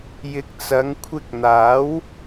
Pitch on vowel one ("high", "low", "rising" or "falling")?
low